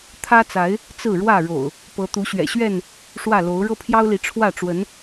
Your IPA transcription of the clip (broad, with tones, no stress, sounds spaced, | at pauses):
t̪ʰ ä˦ t͡s a˨˦ ɪ̯ | t͡s ɹ̩˥˨ ɻ w ä˥˨ ɻ o̰˨˩ ʊ̯ | p ɤ˨˦ t̪ u˨˦ ɕ ɥ ɛ̰˨˩ ɕ ɥ ɛ˥˨ n | ʂ w ä˥˨ l o˨˦ ʊ̯ ɻ ɤ˦ pʰ j ɑ˦ ʊ̯ l i˨˦ ʈ͡ʂʰ w ä˥˨ ʈ͡ʂ w ə˨˦ n